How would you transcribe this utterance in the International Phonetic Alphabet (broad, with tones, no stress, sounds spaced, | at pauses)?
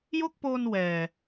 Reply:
j o˥˩ k̚ p oː˧ n w ɛː˨˩